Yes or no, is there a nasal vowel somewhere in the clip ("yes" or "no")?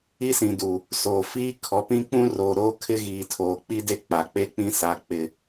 yes